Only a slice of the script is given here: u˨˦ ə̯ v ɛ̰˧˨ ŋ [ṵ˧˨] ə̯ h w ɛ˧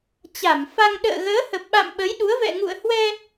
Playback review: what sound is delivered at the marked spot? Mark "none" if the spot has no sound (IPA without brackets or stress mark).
ṵ˧˨